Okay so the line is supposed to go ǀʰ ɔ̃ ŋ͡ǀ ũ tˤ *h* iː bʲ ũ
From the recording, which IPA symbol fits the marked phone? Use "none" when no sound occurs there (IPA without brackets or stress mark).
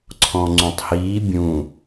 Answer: h